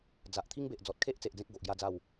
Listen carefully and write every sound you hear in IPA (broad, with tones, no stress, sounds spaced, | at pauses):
d͡z a˨ ʔ t̪ʰ i˦ ŋ b e˨ ʔ d͡z ɔ˨ t̚ kʰ e˦ ʔ t͡s e˨ ʔ d͡z ẽ˦ k̚ ɡ o˨ ʔ ɡ j a˥˧ d͡z a˥˧ w